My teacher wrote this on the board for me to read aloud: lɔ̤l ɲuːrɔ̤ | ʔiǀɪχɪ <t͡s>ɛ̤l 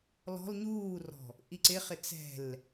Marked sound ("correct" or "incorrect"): correct